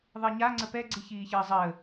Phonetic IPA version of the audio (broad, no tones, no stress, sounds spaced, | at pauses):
ðˤ i ɲ a ŋ͡ǀ ə p ɛ ɡ͡ǀ i ç iː ç əː zˤ əː